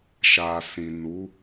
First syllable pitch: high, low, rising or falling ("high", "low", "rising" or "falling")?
low